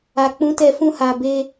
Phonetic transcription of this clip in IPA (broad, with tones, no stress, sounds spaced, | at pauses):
a˨ k͡p ũ˨˦ t ɛ˧ f ũ˧ h a˨ b e˧